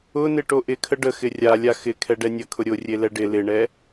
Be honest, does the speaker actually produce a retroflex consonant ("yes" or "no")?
yes